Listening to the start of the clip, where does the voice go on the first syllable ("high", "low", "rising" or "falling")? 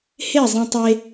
falling